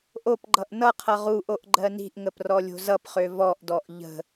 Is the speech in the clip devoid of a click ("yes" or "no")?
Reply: no